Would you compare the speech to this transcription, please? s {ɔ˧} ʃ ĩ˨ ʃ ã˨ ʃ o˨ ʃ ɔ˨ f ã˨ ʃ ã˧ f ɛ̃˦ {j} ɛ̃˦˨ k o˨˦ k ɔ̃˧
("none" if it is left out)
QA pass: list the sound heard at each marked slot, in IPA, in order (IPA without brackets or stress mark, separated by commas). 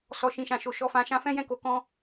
ɔ˨, j